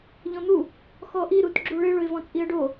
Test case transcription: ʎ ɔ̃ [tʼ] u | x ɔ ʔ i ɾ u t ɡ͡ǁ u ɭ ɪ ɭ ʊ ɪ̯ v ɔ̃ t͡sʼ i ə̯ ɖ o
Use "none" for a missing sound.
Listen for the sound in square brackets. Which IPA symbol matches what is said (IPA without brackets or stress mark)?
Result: n̪